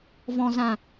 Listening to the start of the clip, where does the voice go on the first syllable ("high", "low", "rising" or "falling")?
low